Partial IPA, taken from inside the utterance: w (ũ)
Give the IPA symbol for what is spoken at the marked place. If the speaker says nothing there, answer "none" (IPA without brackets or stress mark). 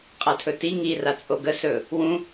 ũ